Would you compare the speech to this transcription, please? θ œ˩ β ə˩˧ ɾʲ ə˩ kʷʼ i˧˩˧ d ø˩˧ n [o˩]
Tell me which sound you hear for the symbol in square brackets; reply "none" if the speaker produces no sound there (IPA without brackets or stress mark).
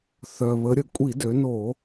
o˧˩˧